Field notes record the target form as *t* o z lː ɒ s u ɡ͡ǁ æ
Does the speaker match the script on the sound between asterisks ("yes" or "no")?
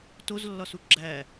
yes